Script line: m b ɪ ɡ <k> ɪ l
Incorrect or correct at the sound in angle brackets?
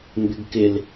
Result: correct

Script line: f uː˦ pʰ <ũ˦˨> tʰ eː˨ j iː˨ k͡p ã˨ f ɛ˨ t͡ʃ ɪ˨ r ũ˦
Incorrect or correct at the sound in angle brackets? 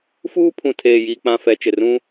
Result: incorrect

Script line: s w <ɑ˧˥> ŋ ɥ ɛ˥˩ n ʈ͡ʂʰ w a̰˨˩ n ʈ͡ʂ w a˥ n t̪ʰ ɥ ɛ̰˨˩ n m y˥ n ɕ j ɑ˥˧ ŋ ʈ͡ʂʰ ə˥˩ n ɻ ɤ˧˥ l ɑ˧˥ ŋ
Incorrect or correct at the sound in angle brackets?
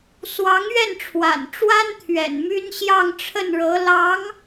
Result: correct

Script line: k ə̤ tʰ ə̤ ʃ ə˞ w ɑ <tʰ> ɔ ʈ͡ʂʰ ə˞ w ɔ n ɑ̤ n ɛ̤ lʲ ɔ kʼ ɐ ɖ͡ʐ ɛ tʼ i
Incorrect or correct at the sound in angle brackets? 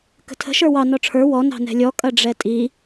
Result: incorrect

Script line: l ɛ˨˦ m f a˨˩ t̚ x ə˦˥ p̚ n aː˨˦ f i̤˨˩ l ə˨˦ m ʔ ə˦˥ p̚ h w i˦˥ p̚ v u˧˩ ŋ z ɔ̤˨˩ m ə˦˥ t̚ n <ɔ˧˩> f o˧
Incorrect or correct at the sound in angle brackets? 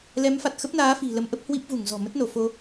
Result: incorrect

